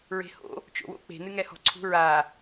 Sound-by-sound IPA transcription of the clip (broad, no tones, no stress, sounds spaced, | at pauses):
ɹ e̤ h o̰ | t͡ʃ o̰ w o̰ k͡p e̤ n ɨ ŋ ɛ h ɔ̤ ǀʰ ṳ ɹ a